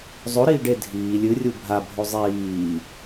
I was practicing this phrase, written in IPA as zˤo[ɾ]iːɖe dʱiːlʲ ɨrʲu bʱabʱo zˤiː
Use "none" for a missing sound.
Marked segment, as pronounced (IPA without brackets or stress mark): ɾ